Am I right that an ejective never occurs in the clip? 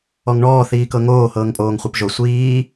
no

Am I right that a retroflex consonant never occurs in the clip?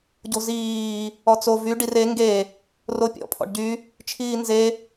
no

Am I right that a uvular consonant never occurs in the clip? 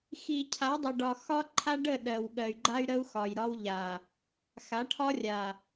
yes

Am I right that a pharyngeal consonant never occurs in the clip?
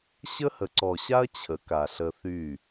yes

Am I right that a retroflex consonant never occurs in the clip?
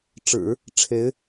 no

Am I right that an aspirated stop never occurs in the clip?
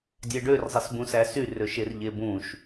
yes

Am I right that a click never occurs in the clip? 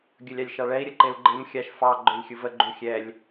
no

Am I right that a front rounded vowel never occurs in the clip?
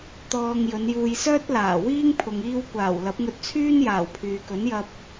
no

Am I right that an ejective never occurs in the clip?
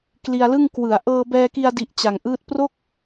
yes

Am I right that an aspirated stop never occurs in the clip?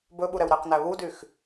yes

